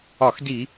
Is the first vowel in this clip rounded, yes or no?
yes